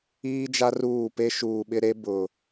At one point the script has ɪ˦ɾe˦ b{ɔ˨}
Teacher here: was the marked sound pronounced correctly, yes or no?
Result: no